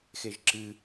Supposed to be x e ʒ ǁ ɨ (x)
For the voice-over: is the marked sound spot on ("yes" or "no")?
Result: no